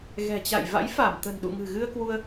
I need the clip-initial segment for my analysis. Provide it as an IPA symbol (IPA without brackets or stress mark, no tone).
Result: ɣ